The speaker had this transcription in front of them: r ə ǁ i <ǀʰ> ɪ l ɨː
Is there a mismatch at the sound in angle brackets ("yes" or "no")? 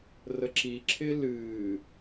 yes